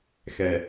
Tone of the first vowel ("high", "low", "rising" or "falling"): low